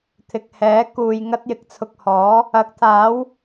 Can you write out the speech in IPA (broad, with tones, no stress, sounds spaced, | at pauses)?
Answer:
t̪ʰ ɪ˨ k̚ h ɛː˨˥ k uː˨ j ŋ ɐ˥ t̚ j ɪ˨˥ k̚ t͡sʰ ʊ˧ k̚ h ɔː˨˥ | ɐ˨˥ k̚ t̪ʰ aː˨˥ w